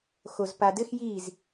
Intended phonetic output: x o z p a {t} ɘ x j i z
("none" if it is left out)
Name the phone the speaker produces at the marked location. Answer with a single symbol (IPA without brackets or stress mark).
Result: d